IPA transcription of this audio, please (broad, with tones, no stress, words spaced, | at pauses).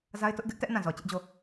za˦ɪ̯tʊ˦ʔ ɡɪ˦ʔtɛ˦ʔ nã˦˨zɔ˨ t͡ɕɪ˦ʔd͡ʑo˦˨